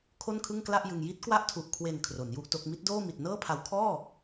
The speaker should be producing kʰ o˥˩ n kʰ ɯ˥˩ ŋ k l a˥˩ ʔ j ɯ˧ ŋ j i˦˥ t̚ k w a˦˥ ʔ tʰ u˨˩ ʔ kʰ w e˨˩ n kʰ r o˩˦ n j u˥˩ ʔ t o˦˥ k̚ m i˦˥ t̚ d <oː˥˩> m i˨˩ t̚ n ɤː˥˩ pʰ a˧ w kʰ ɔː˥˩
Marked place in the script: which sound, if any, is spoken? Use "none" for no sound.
oː˥˩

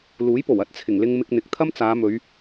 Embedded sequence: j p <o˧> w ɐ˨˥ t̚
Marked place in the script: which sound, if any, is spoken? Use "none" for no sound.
o˨˩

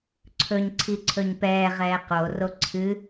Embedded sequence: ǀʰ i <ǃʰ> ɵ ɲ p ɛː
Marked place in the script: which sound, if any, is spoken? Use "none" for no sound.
ǀʰ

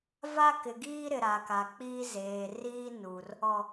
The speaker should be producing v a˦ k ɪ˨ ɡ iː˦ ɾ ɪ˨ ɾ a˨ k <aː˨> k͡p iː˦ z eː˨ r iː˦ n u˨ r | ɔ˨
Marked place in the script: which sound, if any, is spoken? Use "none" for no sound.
a˨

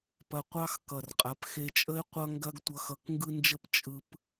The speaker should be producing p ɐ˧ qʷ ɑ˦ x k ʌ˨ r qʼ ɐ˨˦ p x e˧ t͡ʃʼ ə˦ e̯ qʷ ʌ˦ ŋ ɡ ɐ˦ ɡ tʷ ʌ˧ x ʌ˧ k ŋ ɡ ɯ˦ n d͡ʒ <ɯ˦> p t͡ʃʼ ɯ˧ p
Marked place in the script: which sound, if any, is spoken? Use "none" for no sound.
ə˦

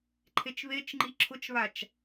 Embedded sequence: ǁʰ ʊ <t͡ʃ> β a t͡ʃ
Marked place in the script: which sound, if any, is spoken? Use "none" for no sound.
t͡ʃ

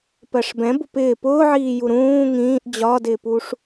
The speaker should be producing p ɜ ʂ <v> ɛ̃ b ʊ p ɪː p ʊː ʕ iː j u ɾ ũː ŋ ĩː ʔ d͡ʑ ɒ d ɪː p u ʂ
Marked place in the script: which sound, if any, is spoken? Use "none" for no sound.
b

